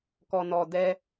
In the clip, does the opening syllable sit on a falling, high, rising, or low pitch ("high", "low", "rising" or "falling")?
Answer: low